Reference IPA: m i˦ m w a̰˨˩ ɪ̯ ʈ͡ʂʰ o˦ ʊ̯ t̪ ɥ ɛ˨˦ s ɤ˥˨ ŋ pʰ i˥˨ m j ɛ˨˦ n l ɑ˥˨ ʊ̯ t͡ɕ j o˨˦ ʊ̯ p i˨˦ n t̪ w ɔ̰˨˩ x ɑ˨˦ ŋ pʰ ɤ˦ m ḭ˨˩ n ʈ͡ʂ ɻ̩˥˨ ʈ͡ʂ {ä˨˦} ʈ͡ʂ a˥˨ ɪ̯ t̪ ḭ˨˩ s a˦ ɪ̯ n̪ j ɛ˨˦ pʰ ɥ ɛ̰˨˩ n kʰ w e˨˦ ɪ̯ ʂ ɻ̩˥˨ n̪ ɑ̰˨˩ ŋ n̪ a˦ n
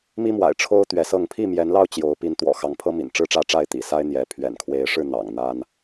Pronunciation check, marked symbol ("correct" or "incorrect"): incorrect